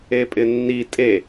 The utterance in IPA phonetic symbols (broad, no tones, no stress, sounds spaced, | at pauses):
e pʼ ɪ nː i tʼ e